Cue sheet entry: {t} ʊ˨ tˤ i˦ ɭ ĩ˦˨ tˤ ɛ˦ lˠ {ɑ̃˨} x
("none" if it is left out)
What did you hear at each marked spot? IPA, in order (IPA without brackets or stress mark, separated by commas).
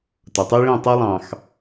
t, ɑ̃˨